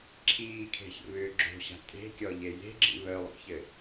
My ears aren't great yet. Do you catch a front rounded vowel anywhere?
yes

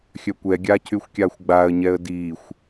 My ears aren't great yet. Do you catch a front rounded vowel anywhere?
yes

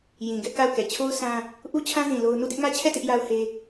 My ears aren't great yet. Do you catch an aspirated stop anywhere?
yes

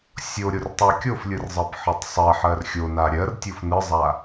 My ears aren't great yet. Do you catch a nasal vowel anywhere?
no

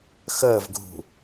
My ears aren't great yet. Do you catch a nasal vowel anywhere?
no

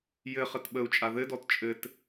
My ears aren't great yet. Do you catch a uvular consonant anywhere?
yes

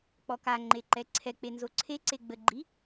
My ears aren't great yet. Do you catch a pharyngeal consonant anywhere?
no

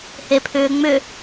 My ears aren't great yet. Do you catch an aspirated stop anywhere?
yes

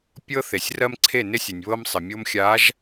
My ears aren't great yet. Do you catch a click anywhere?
yes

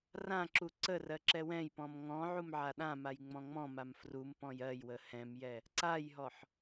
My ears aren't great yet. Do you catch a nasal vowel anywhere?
yes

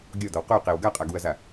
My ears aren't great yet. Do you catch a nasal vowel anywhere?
no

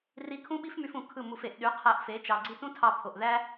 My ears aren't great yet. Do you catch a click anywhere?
yes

